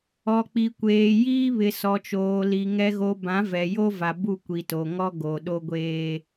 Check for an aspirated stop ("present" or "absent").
absent